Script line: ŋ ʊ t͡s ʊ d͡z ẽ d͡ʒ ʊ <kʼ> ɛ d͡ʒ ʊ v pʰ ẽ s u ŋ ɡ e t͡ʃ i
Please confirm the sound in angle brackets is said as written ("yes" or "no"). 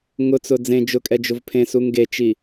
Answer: yes